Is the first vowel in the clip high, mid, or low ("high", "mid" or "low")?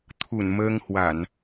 high